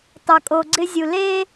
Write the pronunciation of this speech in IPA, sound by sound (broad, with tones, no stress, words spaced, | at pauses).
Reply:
tˤœ˨kʼo˨ɡ͡ǀɪ˧zʲu˨ le˧